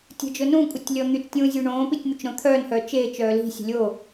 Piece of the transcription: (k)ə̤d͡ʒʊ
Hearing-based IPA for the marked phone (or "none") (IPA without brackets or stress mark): tʲ